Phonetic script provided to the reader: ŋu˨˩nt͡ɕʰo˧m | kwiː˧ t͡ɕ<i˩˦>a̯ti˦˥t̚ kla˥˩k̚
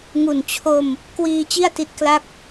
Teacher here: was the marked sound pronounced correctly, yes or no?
no